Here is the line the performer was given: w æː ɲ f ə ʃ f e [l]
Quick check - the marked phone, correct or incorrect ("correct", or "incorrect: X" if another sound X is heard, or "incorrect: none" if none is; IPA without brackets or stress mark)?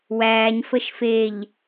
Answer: incorrect: ʎ